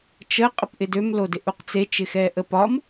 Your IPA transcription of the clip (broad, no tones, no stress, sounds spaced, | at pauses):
t͡ʃ ə qʼ ə p ʔ ɪ d ø m l o d ɪ ʔ u q t͡s e t͡ʃ ɪ x ɛ ʔ ə p ɒ m